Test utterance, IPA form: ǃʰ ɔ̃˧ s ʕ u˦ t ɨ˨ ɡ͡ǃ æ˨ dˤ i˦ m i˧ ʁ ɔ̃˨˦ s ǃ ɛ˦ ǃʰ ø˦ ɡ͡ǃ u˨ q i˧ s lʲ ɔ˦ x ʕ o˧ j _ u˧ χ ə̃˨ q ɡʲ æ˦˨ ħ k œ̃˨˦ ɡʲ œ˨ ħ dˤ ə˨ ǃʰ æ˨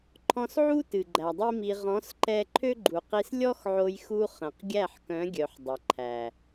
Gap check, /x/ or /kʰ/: x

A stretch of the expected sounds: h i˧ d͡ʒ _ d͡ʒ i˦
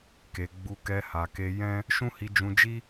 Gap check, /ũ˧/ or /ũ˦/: ũ˧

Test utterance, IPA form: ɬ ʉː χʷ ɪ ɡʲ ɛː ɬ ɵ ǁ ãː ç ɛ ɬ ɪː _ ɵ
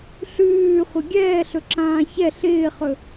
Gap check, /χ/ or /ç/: χ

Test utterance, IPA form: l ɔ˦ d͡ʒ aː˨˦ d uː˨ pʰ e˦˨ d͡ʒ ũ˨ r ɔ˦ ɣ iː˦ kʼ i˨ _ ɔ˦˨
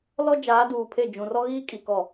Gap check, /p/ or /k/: k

